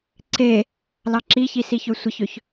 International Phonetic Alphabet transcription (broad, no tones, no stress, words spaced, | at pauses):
ǀe | lɑǁiçi siçøsʷəçøç